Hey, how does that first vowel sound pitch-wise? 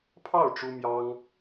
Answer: falling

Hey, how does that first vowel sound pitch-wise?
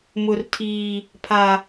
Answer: low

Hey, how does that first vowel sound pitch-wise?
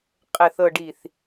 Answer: low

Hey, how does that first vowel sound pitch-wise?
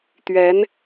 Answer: rising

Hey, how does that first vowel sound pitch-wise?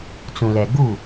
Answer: low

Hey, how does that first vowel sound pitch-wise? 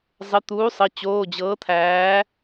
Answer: rising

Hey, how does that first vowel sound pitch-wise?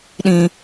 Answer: low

